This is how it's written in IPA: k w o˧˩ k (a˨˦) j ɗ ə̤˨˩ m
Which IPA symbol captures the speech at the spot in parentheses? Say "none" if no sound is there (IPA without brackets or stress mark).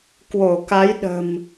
a˨˦